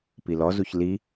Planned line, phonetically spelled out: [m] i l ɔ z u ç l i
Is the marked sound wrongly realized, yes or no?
yes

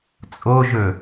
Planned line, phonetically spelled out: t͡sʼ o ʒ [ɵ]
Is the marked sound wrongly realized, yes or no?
no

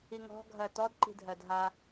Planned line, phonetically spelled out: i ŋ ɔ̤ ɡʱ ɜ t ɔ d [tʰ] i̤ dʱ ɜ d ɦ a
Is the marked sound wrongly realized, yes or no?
yes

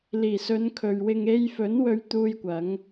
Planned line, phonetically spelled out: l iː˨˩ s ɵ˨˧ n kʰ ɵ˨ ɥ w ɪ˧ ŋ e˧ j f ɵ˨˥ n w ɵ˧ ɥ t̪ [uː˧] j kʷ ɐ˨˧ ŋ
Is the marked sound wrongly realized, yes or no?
no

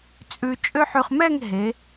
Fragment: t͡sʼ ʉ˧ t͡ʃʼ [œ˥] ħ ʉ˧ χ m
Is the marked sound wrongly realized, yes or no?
yes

